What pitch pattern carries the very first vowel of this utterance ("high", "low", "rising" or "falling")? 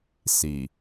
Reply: low